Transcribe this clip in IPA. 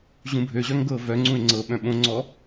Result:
ʑũbʱøʑœŋ ɡɤːvœŋ͡ǀũe̯ ŋ͡ǀɤɓœ̃ ɓõŋ͡ǀɔː

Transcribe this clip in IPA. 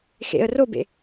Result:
xḛə̯ robḛ

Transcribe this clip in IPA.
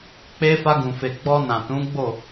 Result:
k͡pe˧ fa˧ɡũ˨fe˨ ɡ͡bɔ˧nã˨ tũ˨˦ɡ͡bo˦˨

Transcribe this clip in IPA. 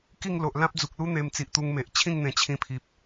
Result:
ki˥˧ŋlo˨ʔ lã˦p̚d͡zu˨k̚lu˦ n̪e˧mt͡si˨ʔt̪u˧ŋ me˨ʔ t͡ɕʰĩ˥˧ŋn̪ẽ˨˩ t͡ɕʰĩ˧pʰi˨p̚

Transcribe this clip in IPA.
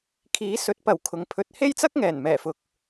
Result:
kʰiː˨˥ sɵ˨˥t̚pɐ˨˩w kʰʊ˨ŋpʰɵ˧t̚ he˥jt͡sɐ˥k̚ ŋɛː˨˩nmɛː˨˩fʊ˨k̚

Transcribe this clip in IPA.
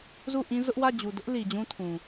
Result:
zu˦˨ʔĩ˦ zʊ˦ʔwä˦˨ d͡ʑu˨dʊ˦ʔ li˨d͡ʑũ˦tʰũ˨

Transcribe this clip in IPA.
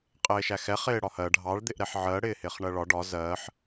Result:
qʼɪːʃæxɛ χɪːɽɒhɜ ɖʱɑɭ d̪ɪʔɾɛħʕɜ ɽɪːhɪːχɳɜɭɒ ɖɒ zɜħ

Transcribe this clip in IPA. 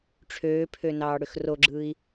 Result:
ʈ͡ʂʰøːpʰø nɑːɽøxroɡ͡ǁɯːi̯

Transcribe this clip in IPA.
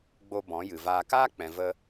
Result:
ɡ͡bo˧ bɔ̃˨˦ jɨ˨vaː˧ kaː˦k͡pɛ̃˨ və˧

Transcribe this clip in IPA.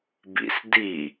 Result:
bḭs di

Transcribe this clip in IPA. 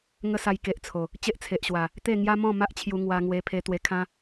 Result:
ŋə˦sa˧jke˨ʔt͡sʰo˨˩ | t͡ɕe˦ʔt͡sʰe˨ʔɕwa˨˩ | t̪e˥˧ ŋja˦mɔ̃˥˧ ma˦ʔt͡ɕʰju˧ ŋwa˧ŋwe˧ pʰe˧ t̪we˧kʰã˦

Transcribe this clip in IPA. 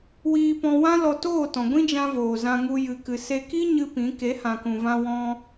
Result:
wiː˧pɔ̃˧wã˦ lɔ˧toː˦˨tɔ̃˨ɡʷĩ˦ d͡ʒã˦voː˨ zã˧ŋu˧ jɨ˨kɨ˨ se˧ki˦ ɲɨ˦pĩ˨˦ ke˨˦hã˨kũ˨vã˧ wɔ̃˧

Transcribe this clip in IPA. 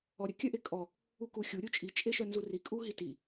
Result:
ɔɾʲə kʲœʔekʼɔ | ukuxʲu ɾʲut͡ʃʼi t͡ʃʼeʃœnzuri kʼuɦiti

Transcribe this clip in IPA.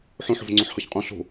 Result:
ħõ ħo̤vŋ͡ǀõħhɤçqʼõ ɬo̤

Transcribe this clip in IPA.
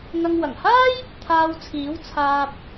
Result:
ŋɐ˧ŋ wɐ˨˩ŋhaː˥j | t̪ʰaː˧wt͡sʰiː˨˥w t͡sʰaː˧p̚

